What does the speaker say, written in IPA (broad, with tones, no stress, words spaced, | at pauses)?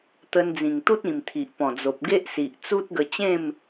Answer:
t̪ə˧nd͡zĩ˨˩ŋt̪u˦t̚ĩ˨˩m t̪ʰi˨ʔpɔ̃˨˩d͡zo˨p̚ ɡe˦ʔsi˨ʔt͡su˦t̚ɡə˧ t͡ɕẽ˥˧m